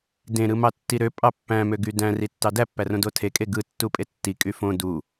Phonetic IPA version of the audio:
d ẽ ɾ ɯ m ɑ tː i ɾ ø pʼ ɑ pː æ̃ m ø ɡ y d æ̃ r i tː ɑ d æ pː æ r õ d o tʰ e kʼ e ɡ ɯ tː u pʼ e tː i kʼ y f õ d u

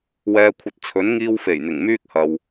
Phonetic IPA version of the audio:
w ɛː˨ kʷʰ ɐ˨ t̚ t͡sʰ ɵ˨˥ n ŋ iː˧ w f e˨˩ j n̪ ɪ˨˩ ŋ m yː˥ k̚ h ɐ˨ w

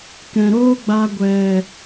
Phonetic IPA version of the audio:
k ɛ̃˨ ɾ oː˦ ɡ͡b a˧ ɡʷ ɛ˨

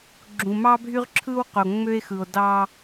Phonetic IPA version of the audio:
ɡ͡ǁ ũ˨ m ɑ˦ bʱ y˦ ʁ ǁʰ ɯ˦ w q o˨ ŋ͡m ø˦ e̯ x ɯ˨ o̯ d ɑ˦

